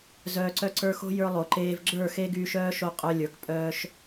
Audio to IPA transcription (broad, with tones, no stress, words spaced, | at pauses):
zœː˨ǀœ˧ǀə˞˧ xo̤˧ jə˞˦lˠo˨ ǃeː˧v ɡ͡ǁə˞˦˨ xe˦ɡyː˧ʃœː˦ʃo˧ qʼœ˦lʲə˞˨˦k pʼœː˦ʃ